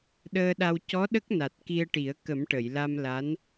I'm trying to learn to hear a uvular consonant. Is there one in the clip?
no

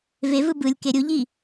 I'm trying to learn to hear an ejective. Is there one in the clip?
no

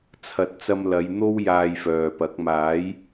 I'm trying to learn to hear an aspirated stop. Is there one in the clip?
yes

